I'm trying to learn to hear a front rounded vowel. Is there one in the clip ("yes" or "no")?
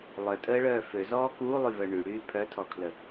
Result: yes